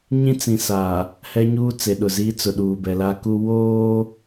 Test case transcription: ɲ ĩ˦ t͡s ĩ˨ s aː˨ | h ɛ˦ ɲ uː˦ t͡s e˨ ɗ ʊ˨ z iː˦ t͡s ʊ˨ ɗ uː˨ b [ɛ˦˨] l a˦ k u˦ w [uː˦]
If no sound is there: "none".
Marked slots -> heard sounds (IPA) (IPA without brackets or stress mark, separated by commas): ɛ˨, oː˦